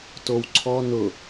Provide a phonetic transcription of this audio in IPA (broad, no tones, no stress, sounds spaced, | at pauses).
t o w ǀʰ ɔ n ʊ